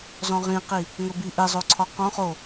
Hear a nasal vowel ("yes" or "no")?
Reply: yes